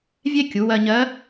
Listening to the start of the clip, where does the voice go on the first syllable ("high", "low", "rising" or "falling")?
high